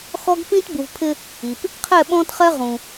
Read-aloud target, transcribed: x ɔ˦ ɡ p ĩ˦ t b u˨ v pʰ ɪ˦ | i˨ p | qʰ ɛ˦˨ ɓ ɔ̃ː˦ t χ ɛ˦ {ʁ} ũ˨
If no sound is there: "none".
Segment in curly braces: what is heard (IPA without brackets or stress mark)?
ʁ